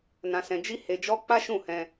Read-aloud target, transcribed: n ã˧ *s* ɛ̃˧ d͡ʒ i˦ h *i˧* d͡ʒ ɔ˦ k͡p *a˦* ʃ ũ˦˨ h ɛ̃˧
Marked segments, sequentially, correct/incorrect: correct, incorrect: e˧, correct

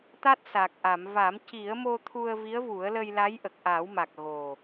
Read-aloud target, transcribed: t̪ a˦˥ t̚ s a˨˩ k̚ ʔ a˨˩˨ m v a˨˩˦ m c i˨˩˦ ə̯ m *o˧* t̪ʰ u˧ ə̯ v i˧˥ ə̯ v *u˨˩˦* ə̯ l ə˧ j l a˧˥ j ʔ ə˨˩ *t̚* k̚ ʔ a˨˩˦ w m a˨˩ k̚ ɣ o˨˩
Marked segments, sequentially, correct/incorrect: correct, correct, incorrect: none

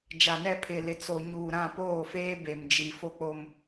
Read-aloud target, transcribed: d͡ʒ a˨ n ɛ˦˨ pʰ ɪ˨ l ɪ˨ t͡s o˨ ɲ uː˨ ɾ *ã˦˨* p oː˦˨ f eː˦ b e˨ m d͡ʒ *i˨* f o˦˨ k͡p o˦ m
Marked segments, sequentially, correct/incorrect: correct, correct

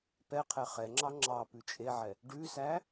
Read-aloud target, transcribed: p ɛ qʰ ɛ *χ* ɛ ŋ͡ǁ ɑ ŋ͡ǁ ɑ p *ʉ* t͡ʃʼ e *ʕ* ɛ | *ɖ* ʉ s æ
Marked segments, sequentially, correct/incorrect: correct, correct, correct, correct

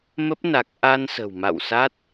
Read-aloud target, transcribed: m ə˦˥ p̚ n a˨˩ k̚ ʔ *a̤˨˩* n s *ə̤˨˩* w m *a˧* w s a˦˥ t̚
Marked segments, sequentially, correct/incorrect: incorrect: a˧, correct, incorrect: a̰˧˨

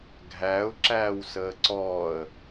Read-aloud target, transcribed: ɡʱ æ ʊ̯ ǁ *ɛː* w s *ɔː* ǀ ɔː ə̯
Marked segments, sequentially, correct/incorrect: incorrect: æː, incorrect: əː

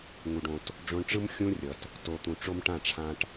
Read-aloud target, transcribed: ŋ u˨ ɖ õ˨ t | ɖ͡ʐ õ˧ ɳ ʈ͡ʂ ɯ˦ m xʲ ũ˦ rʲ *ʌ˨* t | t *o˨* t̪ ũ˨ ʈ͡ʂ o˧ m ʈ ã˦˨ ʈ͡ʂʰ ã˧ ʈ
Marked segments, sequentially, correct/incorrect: correct, correct

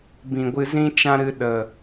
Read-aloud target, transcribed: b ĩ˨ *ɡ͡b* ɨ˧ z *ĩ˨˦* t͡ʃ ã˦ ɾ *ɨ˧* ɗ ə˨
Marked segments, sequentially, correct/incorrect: incorrect: ɡʷ, incorrect: ĩ˦, correct

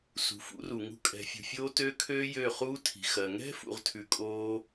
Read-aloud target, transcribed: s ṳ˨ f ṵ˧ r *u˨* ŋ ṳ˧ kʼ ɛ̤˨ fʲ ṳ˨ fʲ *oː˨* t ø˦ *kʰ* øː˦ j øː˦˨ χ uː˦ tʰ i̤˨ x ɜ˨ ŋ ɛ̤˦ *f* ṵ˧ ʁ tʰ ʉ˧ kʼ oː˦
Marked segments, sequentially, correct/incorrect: correct, incorrect: oː˧, correct, correct

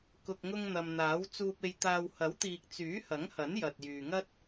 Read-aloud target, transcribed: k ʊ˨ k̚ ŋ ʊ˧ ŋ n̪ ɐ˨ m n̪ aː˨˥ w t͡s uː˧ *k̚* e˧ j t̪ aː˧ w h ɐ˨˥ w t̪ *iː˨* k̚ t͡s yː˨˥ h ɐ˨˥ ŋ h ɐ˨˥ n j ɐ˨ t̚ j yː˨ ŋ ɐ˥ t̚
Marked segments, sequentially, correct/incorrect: incorrect: p̚, correct

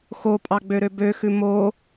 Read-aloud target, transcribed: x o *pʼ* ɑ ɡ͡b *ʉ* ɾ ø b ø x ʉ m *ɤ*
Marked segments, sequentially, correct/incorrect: correct, incorrect: ø, incorrect: o

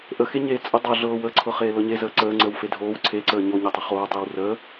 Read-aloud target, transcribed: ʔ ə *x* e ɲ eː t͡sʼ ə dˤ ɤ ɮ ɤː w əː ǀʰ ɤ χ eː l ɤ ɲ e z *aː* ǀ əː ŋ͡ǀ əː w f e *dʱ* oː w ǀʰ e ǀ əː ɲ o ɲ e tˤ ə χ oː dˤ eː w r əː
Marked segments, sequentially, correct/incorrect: correct, incorrect: əː, correct

